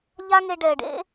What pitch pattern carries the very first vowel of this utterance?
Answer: high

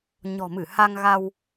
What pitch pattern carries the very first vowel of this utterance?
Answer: low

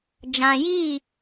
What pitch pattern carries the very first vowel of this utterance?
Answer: low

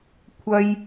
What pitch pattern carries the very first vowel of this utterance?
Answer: high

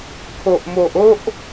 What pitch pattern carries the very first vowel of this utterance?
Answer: low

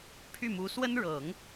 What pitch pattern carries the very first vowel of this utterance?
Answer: falling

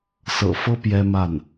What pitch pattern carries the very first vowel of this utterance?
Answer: low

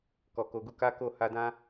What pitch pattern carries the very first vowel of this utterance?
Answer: low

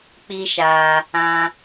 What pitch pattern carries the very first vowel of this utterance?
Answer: high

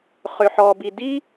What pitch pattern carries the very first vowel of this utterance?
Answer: low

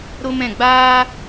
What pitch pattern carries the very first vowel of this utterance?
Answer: high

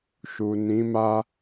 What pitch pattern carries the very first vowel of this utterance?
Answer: low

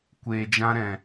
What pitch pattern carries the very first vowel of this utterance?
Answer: low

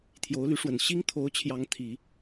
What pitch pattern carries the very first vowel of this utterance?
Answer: rising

